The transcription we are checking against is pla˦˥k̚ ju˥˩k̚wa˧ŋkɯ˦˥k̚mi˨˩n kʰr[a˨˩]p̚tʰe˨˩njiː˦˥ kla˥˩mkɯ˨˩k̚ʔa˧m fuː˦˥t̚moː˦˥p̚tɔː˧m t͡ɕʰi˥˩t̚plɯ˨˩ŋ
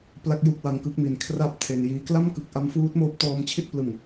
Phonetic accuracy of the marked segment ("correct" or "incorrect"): incorrect